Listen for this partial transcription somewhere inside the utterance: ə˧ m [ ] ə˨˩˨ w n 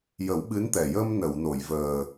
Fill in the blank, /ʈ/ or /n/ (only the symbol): n